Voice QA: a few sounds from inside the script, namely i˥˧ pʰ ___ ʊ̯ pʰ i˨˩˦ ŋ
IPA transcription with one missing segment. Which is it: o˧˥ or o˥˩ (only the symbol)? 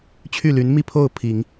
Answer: o˥˩